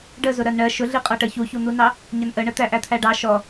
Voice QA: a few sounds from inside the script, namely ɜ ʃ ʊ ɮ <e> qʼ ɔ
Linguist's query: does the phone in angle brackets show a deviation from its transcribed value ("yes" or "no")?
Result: yes